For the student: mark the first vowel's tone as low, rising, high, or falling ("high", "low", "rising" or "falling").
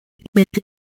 low